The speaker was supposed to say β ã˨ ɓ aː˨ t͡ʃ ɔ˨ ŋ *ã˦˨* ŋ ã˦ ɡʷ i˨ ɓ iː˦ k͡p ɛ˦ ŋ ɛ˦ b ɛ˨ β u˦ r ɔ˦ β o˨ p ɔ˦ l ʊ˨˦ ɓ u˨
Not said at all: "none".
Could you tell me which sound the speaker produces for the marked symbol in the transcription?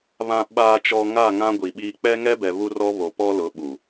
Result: a˦˨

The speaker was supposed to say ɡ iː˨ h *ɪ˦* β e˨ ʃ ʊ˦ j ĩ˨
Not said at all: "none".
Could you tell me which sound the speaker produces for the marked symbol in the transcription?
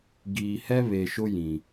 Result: ɛ˦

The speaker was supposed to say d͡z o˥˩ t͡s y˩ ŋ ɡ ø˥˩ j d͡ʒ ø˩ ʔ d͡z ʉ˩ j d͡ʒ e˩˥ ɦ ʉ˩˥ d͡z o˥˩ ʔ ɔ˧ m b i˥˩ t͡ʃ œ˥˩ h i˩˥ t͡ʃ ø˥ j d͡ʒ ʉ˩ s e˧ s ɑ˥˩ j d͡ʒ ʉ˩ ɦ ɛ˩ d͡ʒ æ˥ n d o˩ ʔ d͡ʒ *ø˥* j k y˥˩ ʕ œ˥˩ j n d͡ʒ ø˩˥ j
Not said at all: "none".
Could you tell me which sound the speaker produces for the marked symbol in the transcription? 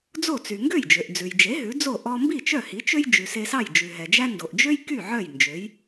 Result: ø˥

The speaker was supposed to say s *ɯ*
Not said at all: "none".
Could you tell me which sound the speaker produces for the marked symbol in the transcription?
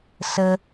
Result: ə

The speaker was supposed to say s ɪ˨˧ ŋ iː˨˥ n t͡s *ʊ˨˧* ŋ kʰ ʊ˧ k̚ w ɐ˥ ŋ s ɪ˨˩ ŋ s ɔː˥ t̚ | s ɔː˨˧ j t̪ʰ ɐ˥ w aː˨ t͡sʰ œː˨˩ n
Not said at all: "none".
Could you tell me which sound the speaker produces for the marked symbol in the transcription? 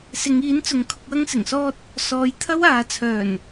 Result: ʊ˨˧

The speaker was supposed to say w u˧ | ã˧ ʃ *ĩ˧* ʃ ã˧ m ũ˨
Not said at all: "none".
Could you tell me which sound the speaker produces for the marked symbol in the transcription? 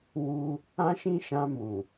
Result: ĩ˧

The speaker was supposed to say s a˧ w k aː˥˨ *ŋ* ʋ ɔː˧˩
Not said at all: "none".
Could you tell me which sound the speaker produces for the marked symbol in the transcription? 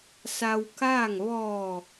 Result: ŋ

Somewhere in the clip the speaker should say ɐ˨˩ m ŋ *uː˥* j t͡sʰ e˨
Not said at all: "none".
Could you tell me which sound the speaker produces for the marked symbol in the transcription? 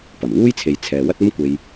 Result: uː˥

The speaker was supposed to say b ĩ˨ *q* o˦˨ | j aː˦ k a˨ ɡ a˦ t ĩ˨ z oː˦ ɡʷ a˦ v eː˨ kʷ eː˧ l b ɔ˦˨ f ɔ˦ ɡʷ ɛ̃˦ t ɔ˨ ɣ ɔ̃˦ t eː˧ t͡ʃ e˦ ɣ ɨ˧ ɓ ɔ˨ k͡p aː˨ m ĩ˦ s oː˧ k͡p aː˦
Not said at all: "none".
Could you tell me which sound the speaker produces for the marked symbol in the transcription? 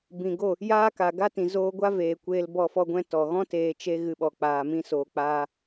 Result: ɡ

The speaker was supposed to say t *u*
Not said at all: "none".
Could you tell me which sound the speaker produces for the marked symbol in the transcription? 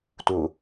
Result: u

